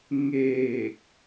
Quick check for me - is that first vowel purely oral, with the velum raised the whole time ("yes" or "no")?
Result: yes